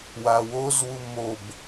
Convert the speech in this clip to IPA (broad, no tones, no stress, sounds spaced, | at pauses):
w a w o z w u m o b